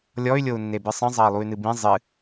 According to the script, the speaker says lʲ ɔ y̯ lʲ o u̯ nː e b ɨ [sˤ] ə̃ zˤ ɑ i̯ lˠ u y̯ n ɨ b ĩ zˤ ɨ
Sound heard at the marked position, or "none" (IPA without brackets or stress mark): sˤ